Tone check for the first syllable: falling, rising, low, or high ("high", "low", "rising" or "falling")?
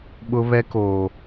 high